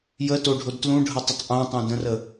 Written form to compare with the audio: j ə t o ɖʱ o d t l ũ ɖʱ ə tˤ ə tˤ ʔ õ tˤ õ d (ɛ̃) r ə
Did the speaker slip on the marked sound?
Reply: yes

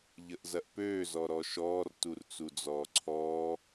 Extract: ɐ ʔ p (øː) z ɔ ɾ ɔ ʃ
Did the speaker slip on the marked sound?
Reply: no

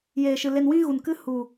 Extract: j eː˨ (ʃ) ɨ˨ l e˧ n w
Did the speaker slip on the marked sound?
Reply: no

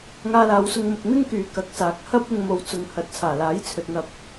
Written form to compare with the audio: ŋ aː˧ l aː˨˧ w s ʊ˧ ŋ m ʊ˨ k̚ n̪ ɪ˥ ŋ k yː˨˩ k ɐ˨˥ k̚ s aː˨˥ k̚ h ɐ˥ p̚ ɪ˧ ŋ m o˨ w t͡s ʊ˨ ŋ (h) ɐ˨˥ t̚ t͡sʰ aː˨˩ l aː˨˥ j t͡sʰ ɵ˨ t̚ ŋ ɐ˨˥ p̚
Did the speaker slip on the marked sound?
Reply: no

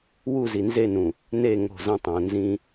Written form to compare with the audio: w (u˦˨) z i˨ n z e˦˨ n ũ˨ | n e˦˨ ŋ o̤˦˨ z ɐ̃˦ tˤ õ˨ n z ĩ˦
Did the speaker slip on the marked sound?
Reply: no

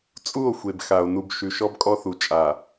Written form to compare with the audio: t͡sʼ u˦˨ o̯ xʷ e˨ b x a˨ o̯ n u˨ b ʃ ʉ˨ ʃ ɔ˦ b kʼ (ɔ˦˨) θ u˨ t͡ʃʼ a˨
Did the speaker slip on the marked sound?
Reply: yes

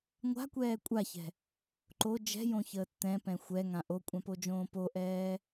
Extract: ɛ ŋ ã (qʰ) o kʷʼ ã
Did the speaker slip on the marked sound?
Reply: yes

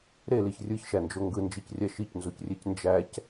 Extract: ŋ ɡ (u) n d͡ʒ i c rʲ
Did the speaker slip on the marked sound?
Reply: yes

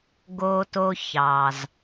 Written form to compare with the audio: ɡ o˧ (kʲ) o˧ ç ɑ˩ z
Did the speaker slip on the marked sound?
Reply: yes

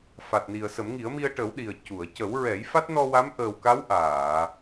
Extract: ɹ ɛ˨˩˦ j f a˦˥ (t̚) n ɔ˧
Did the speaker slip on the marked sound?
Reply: no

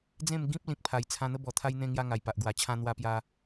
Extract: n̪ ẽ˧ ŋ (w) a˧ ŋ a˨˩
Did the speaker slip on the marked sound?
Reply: yes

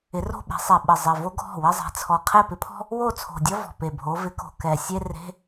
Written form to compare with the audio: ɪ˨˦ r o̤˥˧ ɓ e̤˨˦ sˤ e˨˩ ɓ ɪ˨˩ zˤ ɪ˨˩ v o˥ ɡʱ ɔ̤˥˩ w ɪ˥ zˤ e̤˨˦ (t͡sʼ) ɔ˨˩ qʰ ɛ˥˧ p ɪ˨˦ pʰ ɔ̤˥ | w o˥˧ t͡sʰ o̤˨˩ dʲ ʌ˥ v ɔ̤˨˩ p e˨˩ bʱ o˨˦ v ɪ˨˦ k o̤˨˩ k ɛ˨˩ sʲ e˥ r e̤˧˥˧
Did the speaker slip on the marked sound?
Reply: yes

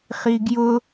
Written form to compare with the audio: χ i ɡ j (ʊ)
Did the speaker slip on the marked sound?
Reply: no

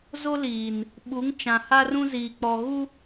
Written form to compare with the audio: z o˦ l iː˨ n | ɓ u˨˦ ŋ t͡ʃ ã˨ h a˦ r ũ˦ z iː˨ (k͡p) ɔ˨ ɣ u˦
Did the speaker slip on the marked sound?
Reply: no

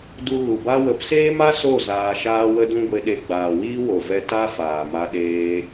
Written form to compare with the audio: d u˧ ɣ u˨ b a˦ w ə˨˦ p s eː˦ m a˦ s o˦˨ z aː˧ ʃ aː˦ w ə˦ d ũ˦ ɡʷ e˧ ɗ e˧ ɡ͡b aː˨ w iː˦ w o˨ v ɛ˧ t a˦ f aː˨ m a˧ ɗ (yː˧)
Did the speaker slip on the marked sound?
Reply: yes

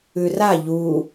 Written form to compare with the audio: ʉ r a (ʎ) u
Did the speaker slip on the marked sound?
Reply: no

